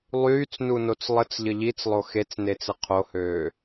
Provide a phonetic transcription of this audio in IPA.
lˠ yː t͡s n u n o t͡s lˠ ə t͡s ʎ ə ʎ i t͡s lˠ o x e t͡s n e t͡s ə qʰ o h øː

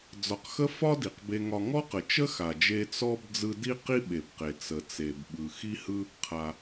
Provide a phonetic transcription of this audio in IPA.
d͡z ɒ˧ q x ə˥ f ɒ˥ d i˩ q b e˧ ŋ ɒ˧ ŋ ɔ˥ q ə˩ t͡ʃ ə˥ x a˩ d͡ʒ e˧ t͡s ɔ˥ b d͡z ɯ˧ d i˥ q i˥ ɓ e˩ b q e˩ t͡s ə˩ t͡s e˩ b ɓ ɯ˩ x i˥ h ɯ˥ | qʰ a˩

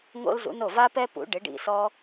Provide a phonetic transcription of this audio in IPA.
ŋ o̰˥ l z ṵ˩˥ n o˥˩ v a˥ p ɛ˥ p ṵ˩˥ ɖ ɪ˩˥ ɖ ḭ˧ s ɔ˥

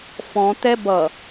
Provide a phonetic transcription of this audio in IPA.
f ɔ̃ t̪ ɛ b ʌ

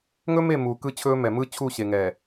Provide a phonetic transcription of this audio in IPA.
ŋ ɵ˦ m e˦˨ m uː˨ k ɯ˦ t͡ɕʰ ɵː˦ m ɛ˨ m ɯ˦ t͡ɕʰ u˦˨ ɕ e˨ ŋ ɛ˨

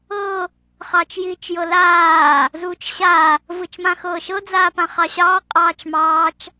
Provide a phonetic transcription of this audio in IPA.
ɤ | χ ɑː t͡ʃ j iː t͡ʃ j ɤ l aː | z uː t͡ʃ ɕ a | v ɯ t͡ʃ m ã x ɤː ʃ ɤ d͡z aː p ã χ ɑ ɕ ɑː qʼ ɑː t͡ʃ m ɑː t͡ʃ

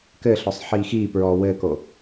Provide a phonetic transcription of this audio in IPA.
k ɘː ɬ ɔ sˤ ħ iː x iː p ɹ ɔː w ɘː k o

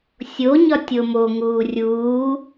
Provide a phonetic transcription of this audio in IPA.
sʲ o ɲ ɒ tʲ o m o ŋ uː rʲ uː

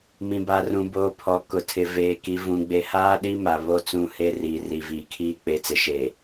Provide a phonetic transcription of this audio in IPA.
m ĩ˨ b a˨ r ũ˨ b oː˨ pʰ ɔ˨ k ʊ˨ tʰ ɪ˨ v eː˨ k i˨ v ũ˨ ɡ͡b e˨ h aː˦ ɗ i˦ m a˨ β o˦˨ t͡s ũ˦˨ h e˦ r iː˨ r i˨ v iː˨ kʰ iː˦ k͡p e˨˦ t͡s ɪ˨ ʃ e˨

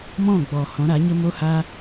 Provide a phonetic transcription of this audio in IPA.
m ɔ̃˦˨ ɡ͡b ɔ˨ h ɔ̃˨˦ ɾ a˨˦ ɲ ə˦ m o˧ h a˧

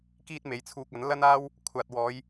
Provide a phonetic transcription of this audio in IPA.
k iː˥ t̚ m e˨˥ j t͡sʰ uː˧ k̚ ɐ˨˥ n l ɐ˥ n aː˥ w | kʷʰ aː˨ t̚ w ɔː˨˧ j

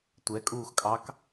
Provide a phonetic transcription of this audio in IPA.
tʷ ɛ kʼ uː x kʼ ɑ k

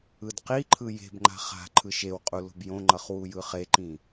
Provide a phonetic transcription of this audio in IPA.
ɯ d q i ǃʰ ɯ j e̤ b ŋ͡ǃ a̤ χ a̤ ǃʰ ɯ ʃ e w qʼ u l o̤ b j õ ŋ͡ǃ ʌ χ w u j ɯ χ e ǃ ĩ

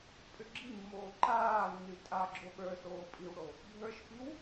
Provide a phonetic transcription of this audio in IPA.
pʼ ʏ ɡ͡ǁ i mː oː ǃ aː nː y tʼ a ɡ͡ǁ o ɓ ə˞ s oː pʼ i w ɽ o | bʱ ə˞ ʃ p i w

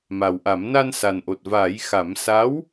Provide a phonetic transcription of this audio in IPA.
m a˨˩ w ʔ a˨˩˦ m n a˧ n s a˨˩ n ʔ o˨˩ t̚ v aː˨˩˦ j x a˨˩˦ m s a˧˥ w

